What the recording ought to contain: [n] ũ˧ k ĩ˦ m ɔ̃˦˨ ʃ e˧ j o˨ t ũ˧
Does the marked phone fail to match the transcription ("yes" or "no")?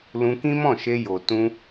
yes